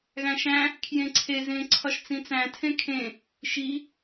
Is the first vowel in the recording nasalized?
yes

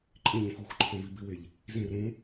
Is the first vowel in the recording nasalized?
yes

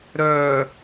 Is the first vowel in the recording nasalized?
no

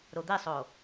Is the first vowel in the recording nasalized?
no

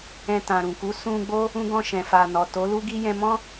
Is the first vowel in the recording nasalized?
yes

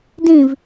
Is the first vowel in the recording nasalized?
yes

